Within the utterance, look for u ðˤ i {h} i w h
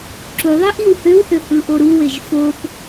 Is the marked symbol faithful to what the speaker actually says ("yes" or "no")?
no